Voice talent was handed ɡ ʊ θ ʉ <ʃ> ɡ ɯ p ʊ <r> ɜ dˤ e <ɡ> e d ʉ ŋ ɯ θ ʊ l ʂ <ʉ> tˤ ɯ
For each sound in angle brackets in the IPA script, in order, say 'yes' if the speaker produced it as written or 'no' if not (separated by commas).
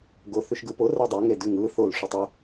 yes, yes, no, no